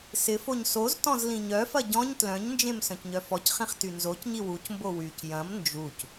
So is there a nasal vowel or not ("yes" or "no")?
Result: yes